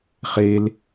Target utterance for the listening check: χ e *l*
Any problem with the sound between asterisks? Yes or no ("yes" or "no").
no